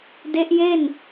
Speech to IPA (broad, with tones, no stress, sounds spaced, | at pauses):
d e˦˥ ʔ j e˥˩ n